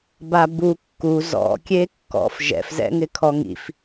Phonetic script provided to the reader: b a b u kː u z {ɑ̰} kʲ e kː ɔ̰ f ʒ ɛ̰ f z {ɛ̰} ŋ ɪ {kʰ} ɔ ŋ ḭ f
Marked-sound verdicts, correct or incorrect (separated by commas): incorrect, correct, correct